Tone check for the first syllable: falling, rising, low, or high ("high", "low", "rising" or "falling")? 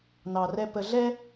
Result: low